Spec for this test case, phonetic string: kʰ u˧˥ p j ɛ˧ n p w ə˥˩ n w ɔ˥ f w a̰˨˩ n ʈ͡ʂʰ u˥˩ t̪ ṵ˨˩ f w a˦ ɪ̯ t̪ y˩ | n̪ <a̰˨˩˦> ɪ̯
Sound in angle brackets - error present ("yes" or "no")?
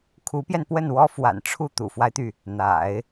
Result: no